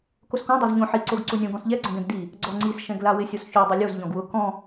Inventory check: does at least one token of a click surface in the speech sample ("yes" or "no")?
yes